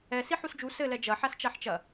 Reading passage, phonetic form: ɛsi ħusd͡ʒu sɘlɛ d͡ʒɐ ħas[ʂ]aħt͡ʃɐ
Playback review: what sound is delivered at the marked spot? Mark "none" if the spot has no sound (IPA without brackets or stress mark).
t͡ʃ